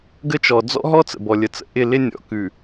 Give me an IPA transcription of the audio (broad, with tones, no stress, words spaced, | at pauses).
ɡə˦t͡ʃɔ˨ d͡zɔ̰˦ɦɔ˦ t͡sə̰˨bɔ˨lʲə˨t͡sə̰˨ ʔɪ˦˨ lɪ˦nʲɔ̰˨ kʉ˨